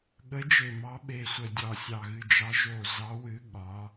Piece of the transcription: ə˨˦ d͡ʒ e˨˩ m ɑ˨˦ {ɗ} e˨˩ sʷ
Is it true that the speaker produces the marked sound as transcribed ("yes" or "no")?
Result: no